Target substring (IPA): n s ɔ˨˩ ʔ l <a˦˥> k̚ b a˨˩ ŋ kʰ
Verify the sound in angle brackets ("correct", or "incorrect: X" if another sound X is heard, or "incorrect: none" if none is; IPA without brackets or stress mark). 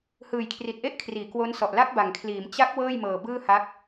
correct